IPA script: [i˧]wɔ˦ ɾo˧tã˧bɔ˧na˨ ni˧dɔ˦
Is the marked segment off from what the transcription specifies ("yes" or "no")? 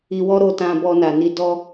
no